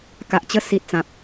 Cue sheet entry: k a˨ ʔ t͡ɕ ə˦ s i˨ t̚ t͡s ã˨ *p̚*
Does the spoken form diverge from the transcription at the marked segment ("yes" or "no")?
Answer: no